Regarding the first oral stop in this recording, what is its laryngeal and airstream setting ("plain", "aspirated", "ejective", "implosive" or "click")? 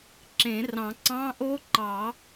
click